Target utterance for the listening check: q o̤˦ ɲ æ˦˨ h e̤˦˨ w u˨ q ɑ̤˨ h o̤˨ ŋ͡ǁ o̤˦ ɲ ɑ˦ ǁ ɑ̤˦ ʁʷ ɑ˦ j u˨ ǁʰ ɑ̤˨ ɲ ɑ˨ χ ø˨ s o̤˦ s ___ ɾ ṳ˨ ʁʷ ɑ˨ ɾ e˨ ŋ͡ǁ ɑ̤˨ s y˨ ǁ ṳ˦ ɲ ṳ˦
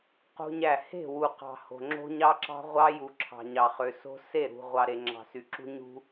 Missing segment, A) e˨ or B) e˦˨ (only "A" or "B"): B